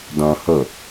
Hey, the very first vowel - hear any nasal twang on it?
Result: yes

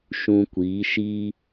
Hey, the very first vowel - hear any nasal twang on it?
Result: yes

